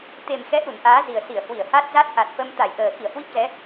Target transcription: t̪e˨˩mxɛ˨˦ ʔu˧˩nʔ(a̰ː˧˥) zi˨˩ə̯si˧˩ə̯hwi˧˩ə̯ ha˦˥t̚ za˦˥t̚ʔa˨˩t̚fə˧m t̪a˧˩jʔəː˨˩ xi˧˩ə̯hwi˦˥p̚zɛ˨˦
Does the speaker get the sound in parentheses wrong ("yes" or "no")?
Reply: yes